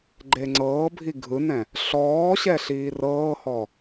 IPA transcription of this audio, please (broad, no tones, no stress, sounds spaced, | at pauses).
ɡ͡ǃ e ŋ͡ǀ ɤː bʱ i ɡʱ ɯ n ɛ̃ | ɬ ɔː ɕ ɛ ɬ iː r ɤː h ɔ